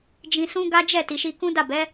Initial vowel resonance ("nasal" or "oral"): nasal